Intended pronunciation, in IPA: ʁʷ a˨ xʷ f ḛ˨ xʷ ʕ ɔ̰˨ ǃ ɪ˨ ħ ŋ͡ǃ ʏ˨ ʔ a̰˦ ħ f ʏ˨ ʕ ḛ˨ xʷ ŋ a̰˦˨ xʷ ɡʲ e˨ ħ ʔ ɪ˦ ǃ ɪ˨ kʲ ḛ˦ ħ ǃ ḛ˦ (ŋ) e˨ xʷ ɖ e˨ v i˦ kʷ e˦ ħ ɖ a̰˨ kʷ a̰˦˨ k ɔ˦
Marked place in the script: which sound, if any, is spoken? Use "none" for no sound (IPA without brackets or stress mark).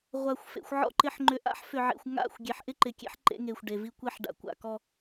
ŋ